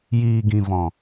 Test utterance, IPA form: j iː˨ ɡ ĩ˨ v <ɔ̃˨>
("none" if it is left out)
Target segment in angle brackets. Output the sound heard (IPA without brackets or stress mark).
ɔ̃˨